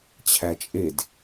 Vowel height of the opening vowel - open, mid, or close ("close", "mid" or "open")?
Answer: open